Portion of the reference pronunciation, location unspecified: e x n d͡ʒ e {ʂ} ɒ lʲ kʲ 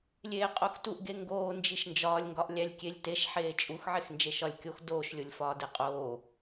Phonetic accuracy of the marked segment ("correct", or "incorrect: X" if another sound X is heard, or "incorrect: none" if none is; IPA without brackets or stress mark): incorrect: ʃ